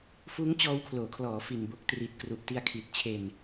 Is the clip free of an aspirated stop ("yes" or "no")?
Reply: no